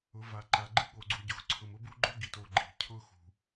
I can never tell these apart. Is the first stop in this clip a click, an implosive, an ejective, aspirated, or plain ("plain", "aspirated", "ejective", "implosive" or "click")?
click